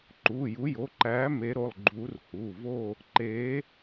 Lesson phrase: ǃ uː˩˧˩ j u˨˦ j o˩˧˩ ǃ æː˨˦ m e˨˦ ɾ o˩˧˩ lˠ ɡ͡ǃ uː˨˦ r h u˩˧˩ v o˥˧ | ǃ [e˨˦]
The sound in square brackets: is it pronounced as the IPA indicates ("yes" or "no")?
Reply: no